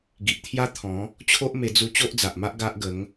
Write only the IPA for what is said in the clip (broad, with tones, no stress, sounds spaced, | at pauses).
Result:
ɡ i˨ ʔ t̪ʰ j a˦ t̪ʰ ɔ̃˨˦ | t͡ɕʰ o˦ ʔ m e˧ d͡z u˧ t͡ɕ o˦ ʔ d͡z a˨ ʔ m a˦ ʔ ɡ a˦ ʔ ɡ ə˨˦ ŋ